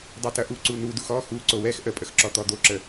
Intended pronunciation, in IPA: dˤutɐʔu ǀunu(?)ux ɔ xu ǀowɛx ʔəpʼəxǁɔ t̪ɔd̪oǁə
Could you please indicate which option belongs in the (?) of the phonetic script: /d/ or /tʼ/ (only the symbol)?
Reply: d